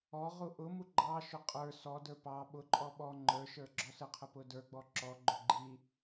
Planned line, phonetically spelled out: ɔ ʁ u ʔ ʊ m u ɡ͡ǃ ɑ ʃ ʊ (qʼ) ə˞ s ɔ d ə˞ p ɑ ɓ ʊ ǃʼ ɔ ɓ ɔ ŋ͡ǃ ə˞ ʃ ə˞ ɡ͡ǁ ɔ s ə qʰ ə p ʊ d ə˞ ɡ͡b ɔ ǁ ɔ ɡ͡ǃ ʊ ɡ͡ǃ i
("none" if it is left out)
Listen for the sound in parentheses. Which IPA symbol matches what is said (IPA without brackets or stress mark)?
qʼ